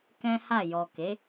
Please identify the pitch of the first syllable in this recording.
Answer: high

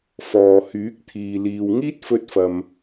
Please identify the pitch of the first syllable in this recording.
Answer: low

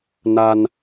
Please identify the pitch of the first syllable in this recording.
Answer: low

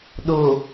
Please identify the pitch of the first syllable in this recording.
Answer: low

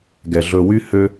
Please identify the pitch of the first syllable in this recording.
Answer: low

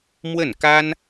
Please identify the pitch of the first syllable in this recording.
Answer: falling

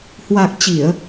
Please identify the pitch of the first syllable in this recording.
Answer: low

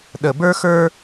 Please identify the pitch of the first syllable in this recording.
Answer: low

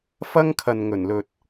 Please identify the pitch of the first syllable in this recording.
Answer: high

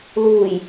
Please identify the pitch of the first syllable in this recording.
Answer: low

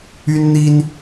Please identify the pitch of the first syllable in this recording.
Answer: high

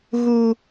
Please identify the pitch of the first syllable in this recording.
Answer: high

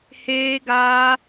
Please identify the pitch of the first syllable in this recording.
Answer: high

